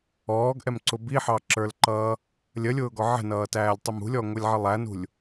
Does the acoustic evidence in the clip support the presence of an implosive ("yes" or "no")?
no